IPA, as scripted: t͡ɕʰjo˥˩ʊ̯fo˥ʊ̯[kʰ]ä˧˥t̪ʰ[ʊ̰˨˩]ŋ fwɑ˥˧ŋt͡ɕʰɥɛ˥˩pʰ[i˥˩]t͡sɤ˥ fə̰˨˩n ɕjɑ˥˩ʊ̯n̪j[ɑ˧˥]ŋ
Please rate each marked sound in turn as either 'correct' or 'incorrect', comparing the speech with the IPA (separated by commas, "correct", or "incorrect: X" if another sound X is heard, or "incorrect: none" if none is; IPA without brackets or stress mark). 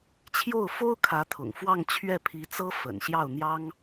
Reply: correct, correct, incorrect: i˧˥, incorrect: ɑ˥